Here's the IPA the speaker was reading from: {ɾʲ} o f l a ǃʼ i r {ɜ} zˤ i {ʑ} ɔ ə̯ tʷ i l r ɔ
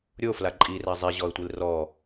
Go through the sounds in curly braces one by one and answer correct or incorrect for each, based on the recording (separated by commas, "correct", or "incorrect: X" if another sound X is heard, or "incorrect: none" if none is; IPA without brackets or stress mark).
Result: correct, incorrect: æ, correct